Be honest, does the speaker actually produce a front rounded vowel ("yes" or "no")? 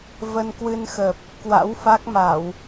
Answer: no